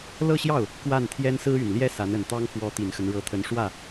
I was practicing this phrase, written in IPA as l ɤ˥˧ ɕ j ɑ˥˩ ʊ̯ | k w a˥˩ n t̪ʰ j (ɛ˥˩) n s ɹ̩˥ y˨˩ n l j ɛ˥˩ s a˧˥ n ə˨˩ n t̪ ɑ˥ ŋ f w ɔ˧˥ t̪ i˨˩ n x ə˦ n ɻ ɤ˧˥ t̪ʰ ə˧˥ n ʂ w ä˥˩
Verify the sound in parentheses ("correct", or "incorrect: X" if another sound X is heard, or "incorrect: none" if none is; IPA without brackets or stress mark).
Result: incorrect: ɛ˥